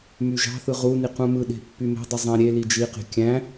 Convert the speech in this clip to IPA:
m y ʒ ɑ̤ θ ɯ ʁ u n i q ũ m ɯ ɗ e̤ pː y m e̤ dˤ i zˤ æ̃ ɾʲ e l i d͡ʒ i q e̤ kʲ æ̃

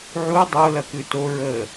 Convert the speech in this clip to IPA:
ʕ u dˤ o l ɐ k ʉ t o ɹ ə

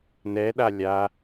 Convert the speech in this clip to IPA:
n ɛ ɗ a lʲ a

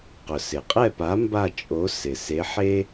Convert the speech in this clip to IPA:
q ʊ˩ s ɪ˩ qʼ ɛ˥˨ p a˨˥ m b a˥˨ t͡ʃʼ o˨˥ s ɪ˩ s e˨˥ ħ e˥

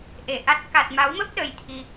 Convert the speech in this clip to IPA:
ʔ e˧˩ ʔ a˦˥ t̚ k a˨˩ t̚ m a˨˦ w m ə˦˥ p̚ ɗ ə˧ j t̪ʰ i˧

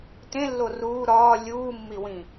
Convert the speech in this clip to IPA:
t ẽ lː o r uː ɾ ɒː lʲ uː mː i w ĩ

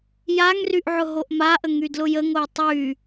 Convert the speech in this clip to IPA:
j a ŋ r y ʔ ʕ ʊ ɦ o ʔ m a ʔ ə ŋ y d l ʊ j ə ŋ o j tˤ y

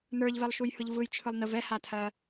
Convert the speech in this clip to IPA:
n ə˞ ʎ v ɛ lˠ ʃ u j h ɯ ʎ v ɯ j t͡ʃʰ ɯ lˠ n ə v ɛ h a tʰ ɜ

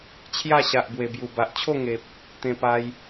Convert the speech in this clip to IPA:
t͡ɕʰ j a˥˧ ɕ a˨ ʔ b w e˨˩ b j u˨˩ b a˨ ʔ t͡ɕʰ o˥˧ ŋ e˨ p̚ | t̪ ẽ˧ p a˧ j

